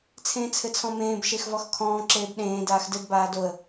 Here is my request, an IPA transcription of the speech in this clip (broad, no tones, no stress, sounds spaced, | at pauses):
t͡sʰ ẽː t͡sʰ ɘ t͡sʰ ɔ̃ m ẽː b ʃ e x v ɔ x kʰ ɔ̃ː ǁ eː b ɗ ẽː d aː x d ɘ d b aː d o ə̯